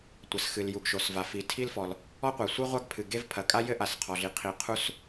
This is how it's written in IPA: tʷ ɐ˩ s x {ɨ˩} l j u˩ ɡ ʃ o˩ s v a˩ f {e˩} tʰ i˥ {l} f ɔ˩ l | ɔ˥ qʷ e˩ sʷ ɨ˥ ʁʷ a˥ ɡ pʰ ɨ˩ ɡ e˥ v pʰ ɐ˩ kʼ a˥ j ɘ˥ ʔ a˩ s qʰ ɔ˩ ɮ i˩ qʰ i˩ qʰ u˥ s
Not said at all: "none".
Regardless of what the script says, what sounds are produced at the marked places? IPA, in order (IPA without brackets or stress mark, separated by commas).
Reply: ɨ˩, i˩, l